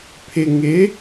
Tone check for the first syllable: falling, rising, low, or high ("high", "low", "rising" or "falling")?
low